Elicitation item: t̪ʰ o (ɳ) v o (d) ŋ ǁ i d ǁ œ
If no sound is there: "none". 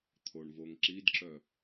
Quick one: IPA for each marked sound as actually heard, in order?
ɳ, none

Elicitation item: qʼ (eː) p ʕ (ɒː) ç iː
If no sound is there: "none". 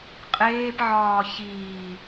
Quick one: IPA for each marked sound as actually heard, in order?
eː, ɒː

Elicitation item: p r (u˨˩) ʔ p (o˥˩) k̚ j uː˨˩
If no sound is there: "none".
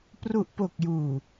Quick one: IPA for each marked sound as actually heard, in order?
u˨˩, o˨˩

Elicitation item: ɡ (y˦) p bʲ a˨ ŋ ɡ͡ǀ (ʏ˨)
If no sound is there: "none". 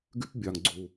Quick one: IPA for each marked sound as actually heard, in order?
y˦, u˨

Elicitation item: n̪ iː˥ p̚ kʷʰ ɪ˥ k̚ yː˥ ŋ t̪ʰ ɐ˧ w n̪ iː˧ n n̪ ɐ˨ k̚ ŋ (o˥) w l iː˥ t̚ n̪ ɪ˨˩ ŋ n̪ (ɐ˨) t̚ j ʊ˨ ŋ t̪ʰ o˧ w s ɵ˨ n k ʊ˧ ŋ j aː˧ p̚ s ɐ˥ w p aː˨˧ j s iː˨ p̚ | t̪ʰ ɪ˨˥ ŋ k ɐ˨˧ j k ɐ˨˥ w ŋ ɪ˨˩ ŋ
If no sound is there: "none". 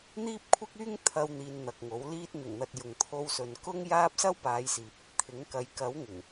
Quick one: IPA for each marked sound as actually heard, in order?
o˨˥, ɐ˨

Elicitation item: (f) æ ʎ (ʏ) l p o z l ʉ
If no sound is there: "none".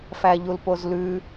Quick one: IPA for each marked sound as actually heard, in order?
f, u

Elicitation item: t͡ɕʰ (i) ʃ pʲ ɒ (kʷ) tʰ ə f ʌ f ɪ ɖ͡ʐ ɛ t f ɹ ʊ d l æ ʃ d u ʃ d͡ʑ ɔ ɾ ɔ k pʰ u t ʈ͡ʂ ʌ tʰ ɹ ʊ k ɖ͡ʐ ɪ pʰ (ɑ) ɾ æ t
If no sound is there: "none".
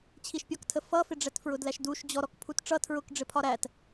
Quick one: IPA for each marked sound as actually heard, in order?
i, k, ɒ

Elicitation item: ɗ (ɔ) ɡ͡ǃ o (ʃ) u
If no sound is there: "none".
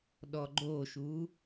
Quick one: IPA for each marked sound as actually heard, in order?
ɔ, ʃ

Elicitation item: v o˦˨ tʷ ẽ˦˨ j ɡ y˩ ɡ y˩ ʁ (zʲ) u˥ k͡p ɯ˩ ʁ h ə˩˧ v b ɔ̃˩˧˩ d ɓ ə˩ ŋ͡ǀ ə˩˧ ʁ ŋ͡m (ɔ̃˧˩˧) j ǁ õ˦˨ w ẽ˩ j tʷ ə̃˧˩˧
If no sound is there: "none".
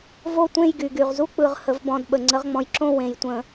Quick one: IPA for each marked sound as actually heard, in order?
z, ɔ̃˩

